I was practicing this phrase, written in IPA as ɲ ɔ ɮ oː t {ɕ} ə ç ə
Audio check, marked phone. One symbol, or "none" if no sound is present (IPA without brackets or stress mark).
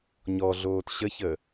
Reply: ɕ